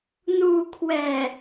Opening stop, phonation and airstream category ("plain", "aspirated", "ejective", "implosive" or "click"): aspirated